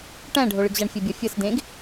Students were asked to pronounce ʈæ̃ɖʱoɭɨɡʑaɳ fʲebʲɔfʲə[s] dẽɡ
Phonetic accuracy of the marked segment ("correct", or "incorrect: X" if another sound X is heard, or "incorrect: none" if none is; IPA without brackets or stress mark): correct